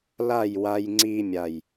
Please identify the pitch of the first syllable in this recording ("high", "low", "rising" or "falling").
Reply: falling